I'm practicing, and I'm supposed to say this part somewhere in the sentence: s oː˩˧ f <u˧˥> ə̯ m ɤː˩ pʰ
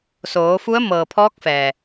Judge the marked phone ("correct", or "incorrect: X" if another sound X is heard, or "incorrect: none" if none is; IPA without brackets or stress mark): correct